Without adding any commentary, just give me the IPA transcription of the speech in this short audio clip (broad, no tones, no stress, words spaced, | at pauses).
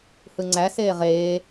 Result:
hɯŋ͡ǀæseː ʁeː